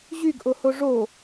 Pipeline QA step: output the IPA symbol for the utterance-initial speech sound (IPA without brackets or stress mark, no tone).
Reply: ʑ